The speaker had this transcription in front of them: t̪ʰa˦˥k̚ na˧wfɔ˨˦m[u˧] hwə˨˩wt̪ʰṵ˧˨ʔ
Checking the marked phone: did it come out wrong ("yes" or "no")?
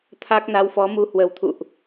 no